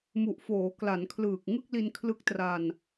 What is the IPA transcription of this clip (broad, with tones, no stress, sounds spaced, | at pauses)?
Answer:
m u˨˩ ʔ f oː˩˦ k l a˩˦ n kʰ l ɯː˨˩ k̚ ŋ ɯ˥˩ k̚ l i˧ n kʰ l ɯ˦˥ k̚ t r a˧ n